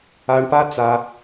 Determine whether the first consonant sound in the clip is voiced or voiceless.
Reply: voiced